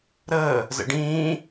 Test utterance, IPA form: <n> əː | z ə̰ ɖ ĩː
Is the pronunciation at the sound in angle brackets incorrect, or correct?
incorrect